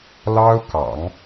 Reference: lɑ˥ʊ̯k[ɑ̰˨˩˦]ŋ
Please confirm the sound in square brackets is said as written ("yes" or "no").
yes